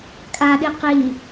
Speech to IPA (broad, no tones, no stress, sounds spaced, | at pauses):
kʼ a ɗ i q i